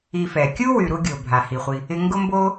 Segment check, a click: absent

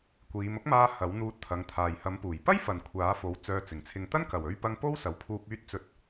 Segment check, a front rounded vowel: present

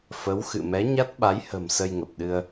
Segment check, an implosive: present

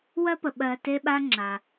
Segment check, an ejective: absent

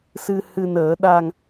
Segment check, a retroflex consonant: absent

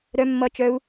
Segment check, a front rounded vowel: present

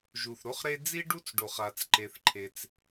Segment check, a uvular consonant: present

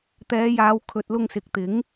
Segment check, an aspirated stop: present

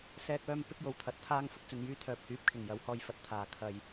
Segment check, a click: absent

